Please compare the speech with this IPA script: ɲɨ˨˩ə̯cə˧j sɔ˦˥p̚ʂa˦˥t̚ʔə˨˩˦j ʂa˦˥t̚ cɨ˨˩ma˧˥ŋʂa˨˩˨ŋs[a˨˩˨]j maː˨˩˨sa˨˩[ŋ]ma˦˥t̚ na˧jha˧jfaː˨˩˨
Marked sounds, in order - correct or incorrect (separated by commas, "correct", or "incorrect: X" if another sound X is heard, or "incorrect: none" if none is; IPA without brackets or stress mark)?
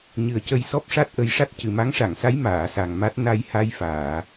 incorrect: a˧˥, correct